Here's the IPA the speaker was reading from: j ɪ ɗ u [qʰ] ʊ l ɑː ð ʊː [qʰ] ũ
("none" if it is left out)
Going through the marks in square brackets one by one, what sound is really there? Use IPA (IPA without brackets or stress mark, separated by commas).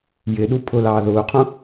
pʰ, qʰ